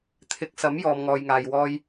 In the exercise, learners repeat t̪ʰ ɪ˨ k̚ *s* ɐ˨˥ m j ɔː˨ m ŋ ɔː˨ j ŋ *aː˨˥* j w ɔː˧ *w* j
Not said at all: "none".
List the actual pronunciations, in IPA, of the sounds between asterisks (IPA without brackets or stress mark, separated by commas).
s, aː˨, none